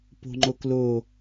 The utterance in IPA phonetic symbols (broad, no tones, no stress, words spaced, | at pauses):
po̤ŋ͡ǃoklo